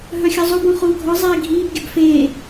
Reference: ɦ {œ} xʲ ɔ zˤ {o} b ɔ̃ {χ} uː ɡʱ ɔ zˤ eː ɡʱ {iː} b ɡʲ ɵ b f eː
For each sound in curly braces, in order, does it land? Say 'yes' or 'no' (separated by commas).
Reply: yes, yes, yes, yes